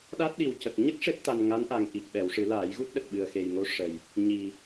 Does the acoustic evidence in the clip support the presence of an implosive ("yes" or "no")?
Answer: yes